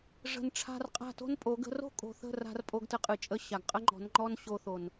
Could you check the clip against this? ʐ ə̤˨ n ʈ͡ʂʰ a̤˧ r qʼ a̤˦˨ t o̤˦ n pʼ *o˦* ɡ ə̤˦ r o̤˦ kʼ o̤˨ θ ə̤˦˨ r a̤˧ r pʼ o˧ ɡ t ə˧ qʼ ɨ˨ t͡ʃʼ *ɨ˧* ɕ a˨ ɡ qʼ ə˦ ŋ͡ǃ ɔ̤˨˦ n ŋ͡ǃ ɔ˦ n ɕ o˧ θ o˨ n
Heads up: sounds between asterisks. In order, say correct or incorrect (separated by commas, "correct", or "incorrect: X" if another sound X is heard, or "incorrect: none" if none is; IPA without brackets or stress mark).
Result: incorrect: o˨˦, incorrect: ə˧